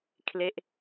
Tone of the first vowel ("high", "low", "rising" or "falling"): falling